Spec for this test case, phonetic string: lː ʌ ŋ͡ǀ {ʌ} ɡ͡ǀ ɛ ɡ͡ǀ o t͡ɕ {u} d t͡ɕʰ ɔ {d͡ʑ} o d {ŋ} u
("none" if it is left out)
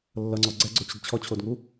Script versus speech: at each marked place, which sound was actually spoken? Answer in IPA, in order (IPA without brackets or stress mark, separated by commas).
ɔ, ɯ, t͡ɕʰ, ŋ